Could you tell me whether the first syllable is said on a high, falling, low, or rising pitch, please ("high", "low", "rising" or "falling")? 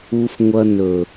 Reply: high